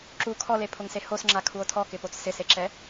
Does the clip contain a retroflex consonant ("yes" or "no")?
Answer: no